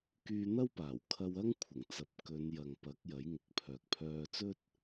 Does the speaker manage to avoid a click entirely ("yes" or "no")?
yes